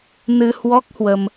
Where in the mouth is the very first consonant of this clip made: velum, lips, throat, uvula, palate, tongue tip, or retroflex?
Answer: tongue tip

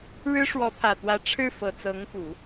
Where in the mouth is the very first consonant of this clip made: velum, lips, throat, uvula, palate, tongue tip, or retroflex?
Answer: retroflex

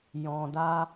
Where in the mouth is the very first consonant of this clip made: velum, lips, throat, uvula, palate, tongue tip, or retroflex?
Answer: palate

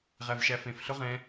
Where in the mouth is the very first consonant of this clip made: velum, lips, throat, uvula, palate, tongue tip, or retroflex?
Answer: uvula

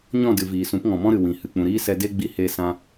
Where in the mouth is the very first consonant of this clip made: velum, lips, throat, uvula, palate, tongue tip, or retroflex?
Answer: palate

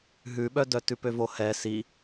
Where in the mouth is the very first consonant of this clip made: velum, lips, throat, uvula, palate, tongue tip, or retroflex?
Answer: throat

